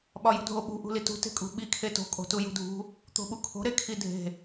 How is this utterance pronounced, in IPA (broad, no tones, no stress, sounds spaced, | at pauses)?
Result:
ɓ ɒ j ṳ dʱ o ɓ ṳ ʔ ṳ l i t ṳ t e̤ kʼ ṳ ɓ i kʰ e t o̤ kʼ o̤ t u j ṳ dʱ ṳ | t̪ o̤ ɓ u kʰ o̤ ɾ e kʰ i dʱ e̤